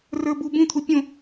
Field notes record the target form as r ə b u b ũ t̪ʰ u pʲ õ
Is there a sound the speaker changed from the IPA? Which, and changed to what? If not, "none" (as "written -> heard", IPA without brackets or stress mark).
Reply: ə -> ə˞